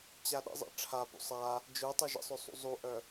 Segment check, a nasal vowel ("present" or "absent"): absent